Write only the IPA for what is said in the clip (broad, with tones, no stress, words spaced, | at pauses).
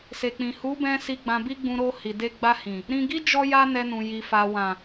se˨k͡pĩ˨ hu˨˦bɛ̃˧ si˧ɡ͡bã˧bi˦ɡ͡bũ˧ ɾo˧ hi˨de˧ɡ͡ba˧hĩ˨ | ɾĩ˧ɡi˦ d͡ʒɔ˦ja˦nɛ˧nũ˨ ji˨fa˨wã˨